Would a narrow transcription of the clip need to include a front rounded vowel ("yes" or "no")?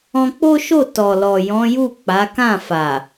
no